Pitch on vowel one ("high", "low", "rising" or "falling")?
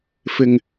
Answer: low